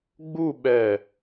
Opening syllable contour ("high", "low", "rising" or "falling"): falling